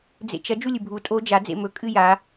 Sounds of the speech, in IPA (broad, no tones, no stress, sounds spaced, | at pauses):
d͡z ḛ t͡ʃ ɐ d͡ʒ u lʲ ɨ bʱ u tʼ o d͡ʒ a d͡z ḛ m ɵ kʼ ɨ j a